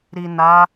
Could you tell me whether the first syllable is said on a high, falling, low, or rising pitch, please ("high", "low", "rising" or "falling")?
low